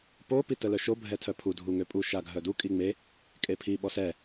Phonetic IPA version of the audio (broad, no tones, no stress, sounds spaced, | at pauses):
p o p i t ə l œ ʃ o bʱ ɛ tʰ œ pʰ u dʱ u ŋ ø pʼ u ʃ a ɡʱ œ d u kʼ i ŋ͡m e | kʼ e pʰ i ɓ ɔ s ɛ